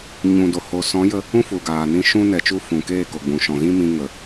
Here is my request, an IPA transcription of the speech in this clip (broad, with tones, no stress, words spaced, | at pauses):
ɲũ˨do˨ ho˨sɔ̃˨˦jə˧ | ũ˦fu˨ɡaː˨nĩ˧ ʃũ˧nɛ˨t͡ʃu˧ fũ˨keː˦˨ko˨ɡ͡bũ˨ ʃɔ̃˨ɣĩ˦mĩ˧ ŋə˨